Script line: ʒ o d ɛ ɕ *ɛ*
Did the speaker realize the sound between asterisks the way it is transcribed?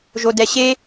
no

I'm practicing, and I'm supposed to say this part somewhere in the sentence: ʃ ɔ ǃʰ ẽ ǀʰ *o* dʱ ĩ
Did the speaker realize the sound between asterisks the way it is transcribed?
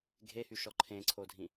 yes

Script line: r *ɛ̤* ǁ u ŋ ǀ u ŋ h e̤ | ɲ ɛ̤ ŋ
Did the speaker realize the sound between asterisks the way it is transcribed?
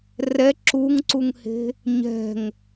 no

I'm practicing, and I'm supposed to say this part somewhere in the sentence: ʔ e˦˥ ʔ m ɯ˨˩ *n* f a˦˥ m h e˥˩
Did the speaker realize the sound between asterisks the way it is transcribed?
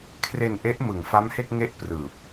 no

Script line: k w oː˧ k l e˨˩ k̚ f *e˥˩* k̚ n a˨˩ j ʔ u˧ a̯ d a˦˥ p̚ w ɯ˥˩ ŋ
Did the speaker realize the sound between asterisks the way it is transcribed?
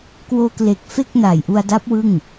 yes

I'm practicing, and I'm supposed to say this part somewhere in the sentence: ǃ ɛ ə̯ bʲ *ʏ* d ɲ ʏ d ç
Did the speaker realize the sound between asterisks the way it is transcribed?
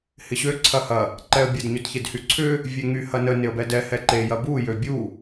no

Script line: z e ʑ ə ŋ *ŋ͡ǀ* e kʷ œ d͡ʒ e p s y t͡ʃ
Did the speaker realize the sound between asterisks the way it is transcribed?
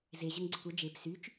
no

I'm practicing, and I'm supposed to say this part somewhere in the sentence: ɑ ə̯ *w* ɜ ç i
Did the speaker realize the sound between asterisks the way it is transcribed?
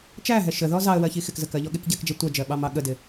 yes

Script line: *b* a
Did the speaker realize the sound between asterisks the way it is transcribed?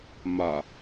no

